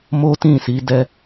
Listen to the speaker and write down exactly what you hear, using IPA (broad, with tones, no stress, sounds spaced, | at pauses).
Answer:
m o˦ t ĩ˦˨ s i˨˦ d ɛ˧